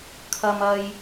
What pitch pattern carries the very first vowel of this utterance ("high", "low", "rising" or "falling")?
low